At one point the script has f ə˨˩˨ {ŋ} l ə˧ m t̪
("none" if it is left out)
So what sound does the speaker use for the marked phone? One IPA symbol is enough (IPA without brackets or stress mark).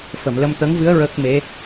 m